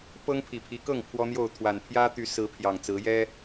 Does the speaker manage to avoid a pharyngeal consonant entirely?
yes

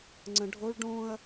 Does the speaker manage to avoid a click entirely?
no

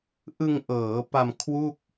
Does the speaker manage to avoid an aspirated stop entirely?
no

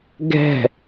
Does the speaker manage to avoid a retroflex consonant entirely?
yes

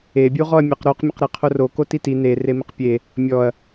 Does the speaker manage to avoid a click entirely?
yes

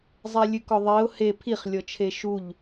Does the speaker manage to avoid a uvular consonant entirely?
no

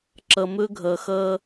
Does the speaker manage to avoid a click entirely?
no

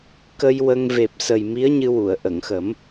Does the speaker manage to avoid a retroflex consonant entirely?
yes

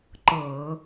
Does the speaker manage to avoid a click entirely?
no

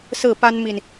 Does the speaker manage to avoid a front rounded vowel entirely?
yes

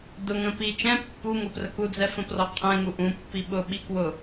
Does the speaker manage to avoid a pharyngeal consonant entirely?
yes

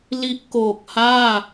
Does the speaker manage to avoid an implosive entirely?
yes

